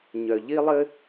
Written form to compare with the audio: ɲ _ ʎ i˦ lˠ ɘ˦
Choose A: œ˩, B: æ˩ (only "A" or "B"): A